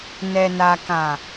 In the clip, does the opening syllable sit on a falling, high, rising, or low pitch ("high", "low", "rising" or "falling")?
low